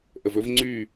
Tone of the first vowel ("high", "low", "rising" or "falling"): low